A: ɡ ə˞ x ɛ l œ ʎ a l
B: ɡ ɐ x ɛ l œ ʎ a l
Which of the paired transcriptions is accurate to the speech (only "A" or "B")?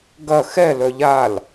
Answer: B